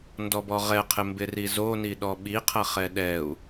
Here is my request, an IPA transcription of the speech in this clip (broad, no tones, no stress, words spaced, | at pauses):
ndɔbɔʁɛqʰɪ mbɪrizoni ɗɔɓiqʰɐχɛ ɗɛu̯